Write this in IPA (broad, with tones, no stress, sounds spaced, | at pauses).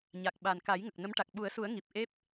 ɲ a˨˩ k̚ ɓ a˨˩ n k a˨˩˦ j ŋ ə˨˩ k̚ n ə˧˥ m ʈ a˨˩ k̚ ɓ u˨˩˦ ə̯ s u˨˩˦ ə̯ ŋ i˨˩ p̚ ʔ e˦˥ p̚